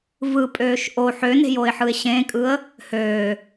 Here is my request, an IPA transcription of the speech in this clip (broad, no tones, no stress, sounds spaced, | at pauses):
v ɯ pʼ øː ʃ ʔ o ħ ø n e̤ j o ɪ̯ ħ ɯ ɪ̯ ɕ ẽ kʼ ɯ ə̯ | h øː